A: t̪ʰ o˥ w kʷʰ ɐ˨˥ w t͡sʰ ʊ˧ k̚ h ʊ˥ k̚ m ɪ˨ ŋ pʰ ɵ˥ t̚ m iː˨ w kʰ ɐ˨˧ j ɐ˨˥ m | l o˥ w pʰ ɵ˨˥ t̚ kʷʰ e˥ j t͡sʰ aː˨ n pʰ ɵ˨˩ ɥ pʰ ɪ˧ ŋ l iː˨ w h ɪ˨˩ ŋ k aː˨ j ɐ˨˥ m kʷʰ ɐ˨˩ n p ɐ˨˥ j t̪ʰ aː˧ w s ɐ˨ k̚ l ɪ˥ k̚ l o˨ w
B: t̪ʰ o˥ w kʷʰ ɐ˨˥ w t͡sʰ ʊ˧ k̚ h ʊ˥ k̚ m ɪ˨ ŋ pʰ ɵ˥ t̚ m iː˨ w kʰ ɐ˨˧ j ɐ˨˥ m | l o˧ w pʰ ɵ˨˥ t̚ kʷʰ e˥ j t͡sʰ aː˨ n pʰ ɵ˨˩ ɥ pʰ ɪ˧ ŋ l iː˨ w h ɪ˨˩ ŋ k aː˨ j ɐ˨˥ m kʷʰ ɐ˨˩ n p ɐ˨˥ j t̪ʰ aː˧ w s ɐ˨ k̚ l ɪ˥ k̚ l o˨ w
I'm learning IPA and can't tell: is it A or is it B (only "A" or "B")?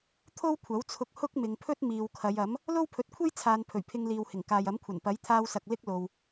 A